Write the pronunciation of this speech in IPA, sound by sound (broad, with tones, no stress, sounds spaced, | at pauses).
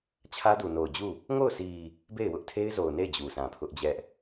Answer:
t͡ɕʰ ä˦ d u˨ n o˨ ʊ̯ d͡ʑ u˦˨ | ŋ o˦˨ ʊ̯ sʰ i˨ | b e˦˨ ɪ̯ w ʊ˦ ʔ tʰ e˦ ɪ̯ z o˨ ʊ̯ n e˦˨ ɪ̯ d͡ʑ u˨ s ã˨ pʰ ʊ˦ ʔ d͡ʑ ɛ˦ ʔ